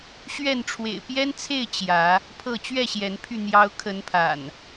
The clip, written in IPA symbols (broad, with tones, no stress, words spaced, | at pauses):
ɕɥɛ˥˨n ʈ͡ʂʰwḛ˨˩ɪ̯pjɛ˦nt͡sʰe˥˨ɪ̯ t͡ɕjä˨˦ | pʰɤ˥˨ t͡ɕɥɛ˥˨ɕjɛ˨˦npʰy˧ n̪jɑ˦ʊ̯ kʰə˨˦npʰa̰˨˩n